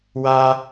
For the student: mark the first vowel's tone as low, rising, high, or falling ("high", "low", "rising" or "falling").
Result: high